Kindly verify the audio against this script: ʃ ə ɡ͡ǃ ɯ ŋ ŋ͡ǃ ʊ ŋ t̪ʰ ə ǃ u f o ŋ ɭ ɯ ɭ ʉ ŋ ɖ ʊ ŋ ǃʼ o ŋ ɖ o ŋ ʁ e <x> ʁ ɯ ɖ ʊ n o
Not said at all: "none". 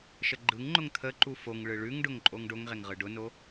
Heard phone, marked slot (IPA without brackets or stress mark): ŋ